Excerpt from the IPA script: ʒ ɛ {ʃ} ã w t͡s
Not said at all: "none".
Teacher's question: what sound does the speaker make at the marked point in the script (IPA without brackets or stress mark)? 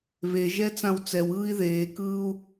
t͡s